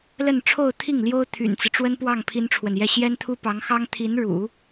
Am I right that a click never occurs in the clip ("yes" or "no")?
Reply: yes